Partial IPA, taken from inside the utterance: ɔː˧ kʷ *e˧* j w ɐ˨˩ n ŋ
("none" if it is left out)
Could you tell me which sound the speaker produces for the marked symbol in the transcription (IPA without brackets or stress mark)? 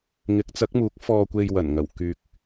e˧